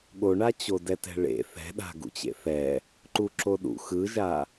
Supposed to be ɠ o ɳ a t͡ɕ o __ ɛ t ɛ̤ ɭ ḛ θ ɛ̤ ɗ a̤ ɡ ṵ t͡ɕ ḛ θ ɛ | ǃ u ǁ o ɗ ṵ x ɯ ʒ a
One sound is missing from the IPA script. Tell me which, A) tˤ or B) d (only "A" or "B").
B